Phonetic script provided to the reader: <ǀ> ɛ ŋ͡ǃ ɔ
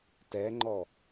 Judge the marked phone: incorrect: t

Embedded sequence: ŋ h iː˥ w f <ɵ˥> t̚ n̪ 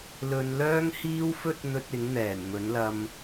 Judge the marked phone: correct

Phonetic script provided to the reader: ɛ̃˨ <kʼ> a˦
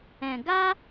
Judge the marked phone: incorrect: ɡ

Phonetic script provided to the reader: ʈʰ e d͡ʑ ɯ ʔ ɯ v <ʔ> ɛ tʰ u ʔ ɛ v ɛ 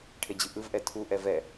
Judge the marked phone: correct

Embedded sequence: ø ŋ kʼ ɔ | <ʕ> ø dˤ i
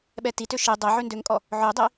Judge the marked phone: correct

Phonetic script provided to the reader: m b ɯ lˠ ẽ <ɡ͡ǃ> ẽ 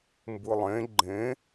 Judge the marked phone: correct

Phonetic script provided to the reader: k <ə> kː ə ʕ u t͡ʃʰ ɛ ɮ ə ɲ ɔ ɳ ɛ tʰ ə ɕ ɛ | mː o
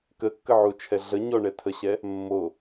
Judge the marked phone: correct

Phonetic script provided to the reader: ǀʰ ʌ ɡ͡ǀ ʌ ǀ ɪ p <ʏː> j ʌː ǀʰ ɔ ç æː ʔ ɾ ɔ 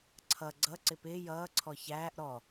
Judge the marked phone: incorrect: ɪː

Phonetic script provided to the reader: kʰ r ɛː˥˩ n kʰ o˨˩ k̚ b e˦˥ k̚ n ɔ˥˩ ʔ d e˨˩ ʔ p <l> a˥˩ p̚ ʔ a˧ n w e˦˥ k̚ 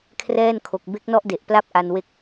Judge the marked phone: correct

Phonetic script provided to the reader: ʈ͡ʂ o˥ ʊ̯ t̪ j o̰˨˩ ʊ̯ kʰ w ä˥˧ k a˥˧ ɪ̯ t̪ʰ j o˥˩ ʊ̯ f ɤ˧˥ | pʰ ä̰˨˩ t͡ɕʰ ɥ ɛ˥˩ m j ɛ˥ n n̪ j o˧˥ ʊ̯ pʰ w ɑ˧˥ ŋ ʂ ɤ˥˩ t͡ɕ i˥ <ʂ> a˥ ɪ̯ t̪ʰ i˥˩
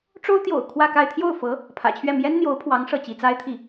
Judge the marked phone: incorrect: t͡s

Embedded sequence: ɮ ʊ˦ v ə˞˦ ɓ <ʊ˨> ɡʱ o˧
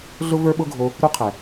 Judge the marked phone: incorrect: ʊ˦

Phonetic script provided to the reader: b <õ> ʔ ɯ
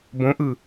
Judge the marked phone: correct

